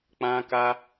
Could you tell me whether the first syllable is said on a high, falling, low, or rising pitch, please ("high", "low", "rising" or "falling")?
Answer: high